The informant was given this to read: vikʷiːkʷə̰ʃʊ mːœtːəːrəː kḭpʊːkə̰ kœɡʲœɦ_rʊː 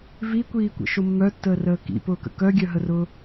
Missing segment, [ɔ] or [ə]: ə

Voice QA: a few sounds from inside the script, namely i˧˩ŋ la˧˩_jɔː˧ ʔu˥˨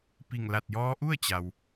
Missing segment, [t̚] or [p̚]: t̚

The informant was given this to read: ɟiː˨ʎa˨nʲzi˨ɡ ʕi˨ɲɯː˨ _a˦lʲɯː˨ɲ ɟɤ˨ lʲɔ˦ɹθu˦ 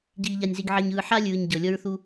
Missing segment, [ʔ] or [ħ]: ħ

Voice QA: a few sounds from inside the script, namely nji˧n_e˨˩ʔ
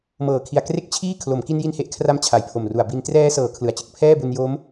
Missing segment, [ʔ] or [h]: h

